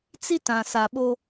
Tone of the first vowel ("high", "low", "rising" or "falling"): high